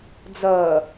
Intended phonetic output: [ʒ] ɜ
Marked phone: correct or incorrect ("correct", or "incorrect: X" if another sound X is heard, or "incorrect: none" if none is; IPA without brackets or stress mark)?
incorrect: d͡z